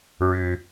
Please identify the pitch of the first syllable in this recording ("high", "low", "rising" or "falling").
low